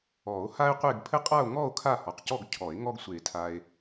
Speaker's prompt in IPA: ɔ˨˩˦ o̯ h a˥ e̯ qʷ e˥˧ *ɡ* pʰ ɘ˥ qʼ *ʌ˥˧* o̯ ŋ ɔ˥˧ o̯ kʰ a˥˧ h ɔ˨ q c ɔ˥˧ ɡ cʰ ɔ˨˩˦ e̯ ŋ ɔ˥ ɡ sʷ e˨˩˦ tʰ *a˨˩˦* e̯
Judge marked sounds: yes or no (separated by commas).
yes, no, no